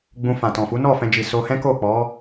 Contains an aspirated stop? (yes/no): no